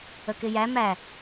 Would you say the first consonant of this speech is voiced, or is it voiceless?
voiceless